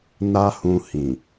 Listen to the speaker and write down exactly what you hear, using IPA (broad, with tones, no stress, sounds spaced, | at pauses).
n a˦ h ũ˧ h ĩ˨